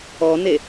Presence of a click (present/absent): absent